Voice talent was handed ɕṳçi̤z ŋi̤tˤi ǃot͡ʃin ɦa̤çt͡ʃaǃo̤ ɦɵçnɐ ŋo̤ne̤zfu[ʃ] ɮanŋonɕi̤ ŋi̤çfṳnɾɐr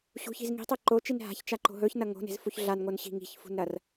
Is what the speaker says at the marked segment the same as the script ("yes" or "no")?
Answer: no